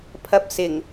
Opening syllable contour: low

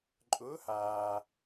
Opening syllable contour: rising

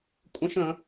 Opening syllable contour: high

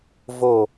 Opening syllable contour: falling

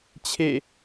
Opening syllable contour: falling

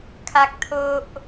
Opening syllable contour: low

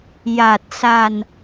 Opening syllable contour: low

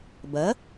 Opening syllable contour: rising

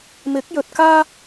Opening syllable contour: rising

